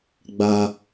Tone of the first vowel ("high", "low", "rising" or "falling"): high